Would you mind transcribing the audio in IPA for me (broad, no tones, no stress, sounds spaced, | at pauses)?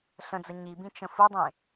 ɬ ə̃ d͡z ə ɲ i b ĩ t͡ʃ ə̃ f u dˤ ẽ